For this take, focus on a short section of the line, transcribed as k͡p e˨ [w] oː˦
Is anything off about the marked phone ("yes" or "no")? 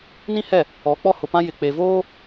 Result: yes